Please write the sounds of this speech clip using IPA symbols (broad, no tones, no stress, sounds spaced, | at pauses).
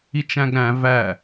i t͡ʃ æ̃ ɡ ɾ æ̃ v æ